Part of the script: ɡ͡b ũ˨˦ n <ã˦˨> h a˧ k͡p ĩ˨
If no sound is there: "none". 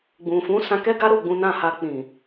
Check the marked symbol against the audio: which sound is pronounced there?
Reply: ã˦˨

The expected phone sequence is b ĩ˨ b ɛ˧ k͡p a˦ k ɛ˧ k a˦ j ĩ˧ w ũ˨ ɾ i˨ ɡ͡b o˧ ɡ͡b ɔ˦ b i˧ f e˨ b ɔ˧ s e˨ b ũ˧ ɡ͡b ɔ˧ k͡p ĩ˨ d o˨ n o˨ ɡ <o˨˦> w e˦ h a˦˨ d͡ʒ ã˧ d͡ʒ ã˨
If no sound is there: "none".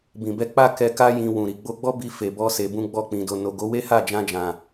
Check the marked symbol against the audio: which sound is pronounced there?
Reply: o˨˦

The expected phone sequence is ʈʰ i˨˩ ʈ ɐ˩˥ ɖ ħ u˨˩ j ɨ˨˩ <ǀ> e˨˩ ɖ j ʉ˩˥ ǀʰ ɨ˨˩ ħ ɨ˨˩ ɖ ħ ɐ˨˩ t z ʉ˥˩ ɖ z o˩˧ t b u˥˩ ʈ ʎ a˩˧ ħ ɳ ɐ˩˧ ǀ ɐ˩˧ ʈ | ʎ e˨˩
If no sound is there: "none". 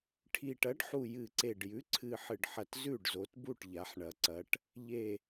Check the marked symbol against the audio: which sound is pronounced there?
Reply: ǀ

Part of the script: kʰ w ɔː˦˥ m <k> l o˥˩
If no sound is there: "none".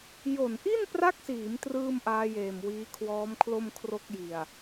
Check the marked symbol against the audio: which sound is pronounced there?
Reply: kʰ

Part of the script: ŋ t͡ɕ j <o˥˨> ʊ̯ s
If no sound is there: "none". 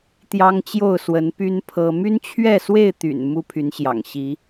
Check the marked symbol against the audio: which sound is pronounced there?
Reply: o˥˨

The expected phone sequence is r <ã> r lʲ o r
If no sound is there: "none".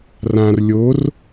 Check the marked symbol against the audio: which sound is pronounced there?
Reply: ã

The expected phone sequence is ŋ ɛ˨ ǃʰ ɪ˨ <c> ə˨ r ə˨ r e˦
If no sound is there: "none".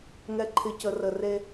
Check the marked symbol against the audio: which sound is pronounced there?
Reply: c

